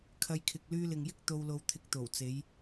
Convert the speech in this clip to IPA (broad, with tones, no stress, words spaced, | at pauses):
kʰɐ˧jkʰɪ˨k̚ lyː˧lɪ˨ŋjɪ˥k̚ t̪o˧wlo˧wt̪ʰɪ˧k̚ t̪o˨˩wt͡se˨˧j